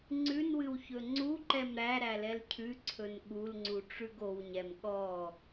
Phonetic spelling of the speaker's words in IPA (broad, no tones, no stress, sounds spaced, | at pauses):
ŋ͡ǀ ʉ n w ɨ w ç ɵ ŋ͡ǀ u ǃ ɛ m ɾ æ ɾ æ l ɛ l cʰ ʉ ǀʰ ɵ n ɠ u l ŋ͡ǀ u ʈ͡ʂ ʉ ɡ o w ɲ ɛ m ɠ ɔ